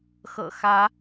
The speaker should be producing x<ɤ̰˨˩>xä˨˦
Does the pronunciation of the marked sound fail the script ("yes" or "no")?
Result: no